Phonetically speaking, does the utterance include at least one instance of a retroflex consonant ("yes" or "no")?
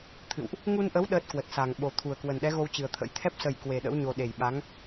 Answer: no